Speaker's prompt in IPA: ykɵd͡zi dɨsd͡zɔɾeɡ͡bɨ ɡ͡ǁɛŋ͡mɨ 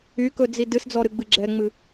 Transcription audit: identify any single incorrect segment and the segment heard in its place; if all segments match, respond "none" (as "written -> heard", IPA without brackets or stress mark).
e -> ɨ